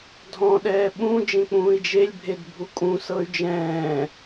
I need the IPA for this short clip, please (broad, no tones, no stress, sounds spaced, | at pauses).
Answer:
dʱ ɔ̃ ɗ ɛː ɓ ũ d͡ʒ ẽ k͡p ũː i̯ d͡ʒ e lʲ bʱ e d bʱ u kʼ ũ s ɤ y̯ d͡ʒ ɛ̃ː